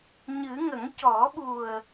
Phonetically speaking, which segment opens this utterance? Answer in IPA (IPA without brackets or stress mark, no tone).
ɲ